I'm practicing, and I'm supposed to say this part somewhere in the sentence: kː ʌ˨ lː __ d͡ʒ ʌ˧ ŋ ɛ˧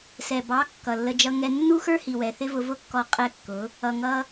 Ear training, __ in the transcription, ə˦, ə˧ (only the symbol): ə˧